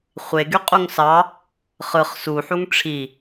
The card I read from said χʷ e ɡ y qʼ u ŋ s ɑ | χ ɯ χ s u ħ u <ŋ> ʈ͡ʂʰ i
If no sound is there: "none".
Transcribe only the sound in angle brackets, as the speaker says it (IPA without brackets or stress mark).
ŋ